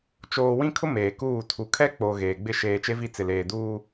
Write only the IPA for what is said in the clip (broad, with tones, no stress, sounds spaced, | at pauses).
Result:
t͡ʃ oː˨ w ĩ˦ kʰ ʊ˦ m eː˨ k uː˦˨ tʰ u˨ kʰ ɛ˦ k͡p o˨ ɣ eː˨ ɡ͡b ɪ˦ ʃ eː˨ t͡ʃ e˦ v i˦˨ t͡s ɪ˨ l eː˨ d uː˦